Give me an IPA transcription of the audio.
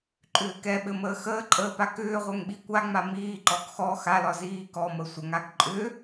ǃʼʏːkɛɓɘ məːxəːǃʼəː pakʏːʁʷɛŋ ɓikʷaŋ͡ma miːǃɔɡ xɔ xalɒ ziːkɔmə sʷəŋaɡ ǃʼʏ

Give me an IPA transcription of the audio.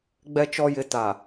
ɡ͡bɛ˨t͡ʃɔ˨jɪ˨ ta˨

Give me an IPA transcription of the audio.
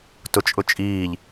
tʊt͡ʃʼʊt͡ʃʼiːʎ

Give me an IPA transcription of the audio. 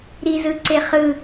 ɾizɯǀeχɯ

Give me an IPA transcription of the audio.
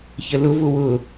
çəlʊ vʊwʊ

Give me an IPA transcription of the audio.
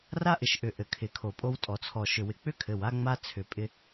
ra˦ʔɪ˨ʃʔʏ˨ ʔɘ˨kʰɪ˨kʰo˨ pʼo˦wtʼɔ˨t͡sʰɔ˨ ʃʏ˨wɪ˨k͡pʏ˦kʰɘ˨w a˦ŋ͡ma˦ t͡sʰʏ˨pʼɪ˦

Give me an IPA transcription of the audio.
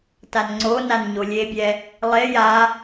tanŋ͡ǀonan ɲolʲebʲɛ | lˠe ja

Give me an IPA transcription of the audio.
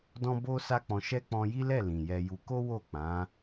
dɔ̃˦bo˦ sa˦k͡pɔ̃˧ ʃɛ˦ k͡pɔ̃˧ji˦lɛ˦˨ lĩ˨jɛ˧ju˧ ko˦wo˦˨k͡pã˨˦

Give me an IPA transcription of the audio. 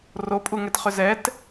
ropʼuŋɛtχʏ zɛt

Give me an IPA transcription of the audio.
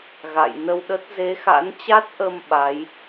ɣa̰˧˨jnə˧wɗə˦˥t̚ ze˨˦xa̰˧˥nt͡ɕa˦˥t̚ʔə˧m ɓa˨˦j

